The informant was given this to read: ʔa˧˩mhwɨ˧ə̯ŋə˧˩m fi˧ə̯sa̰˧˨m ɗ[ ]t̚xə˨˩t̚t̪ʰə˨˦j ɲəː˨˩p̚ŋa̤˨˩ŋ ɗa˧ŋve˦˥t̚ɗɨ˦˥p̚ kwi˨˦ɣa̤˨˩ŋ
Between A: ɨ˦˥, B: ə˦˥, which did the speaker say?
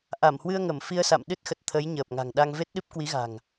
A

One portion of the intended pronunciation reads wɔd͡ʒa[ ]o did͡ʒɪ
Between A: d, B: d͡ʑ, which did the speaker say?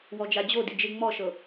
B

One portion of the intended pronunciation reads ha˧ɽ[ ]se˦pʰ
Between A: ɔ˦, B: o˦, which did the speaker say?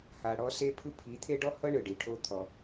A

